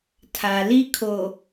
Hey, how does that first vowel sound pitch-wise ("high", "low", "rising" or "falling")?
low